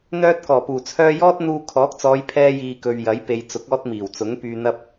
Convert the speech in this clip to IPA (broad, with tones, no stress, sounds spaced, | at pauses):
n̪ œː˥ t̚ k ɔː˨˩ p uː˨˩ t͡sʰ œː˥ j ɔː˥ t̚ n̪ uː˧ kʰ ɔː˨˥ k̚ t͡s ɔː˨˧ j pʰ ɛː˧ j iː˨ k ɵ˨ ɥ j ɐ˨˥ j p e˨ j t͡s ʊ˨˥ k̚ ɔː˥ t̚ m iː˨˩ w t͡s ʊ˨˥ ŋ p yː˨ n̪ ɐ˧ p̚